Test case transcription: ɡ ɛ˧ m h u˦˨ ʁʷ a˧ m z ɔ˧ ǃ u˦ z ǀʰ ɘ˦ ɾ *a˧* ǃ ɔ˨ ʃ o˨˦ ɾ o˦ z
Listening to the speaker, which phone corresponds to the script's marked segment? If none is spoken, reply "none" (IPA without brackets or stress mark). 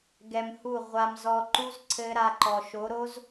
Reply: a˧